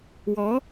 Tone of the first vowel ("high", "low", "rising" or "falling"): rising